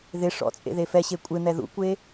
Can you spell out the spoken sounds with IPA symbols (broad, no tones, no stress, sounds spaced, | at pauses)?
ð ɪ ʂ ɔ̰ t͡sʼ ḛ ð e f ɛ ɕ e kʷʼ ɪ n̪ ɛ ð ṵ kʷ e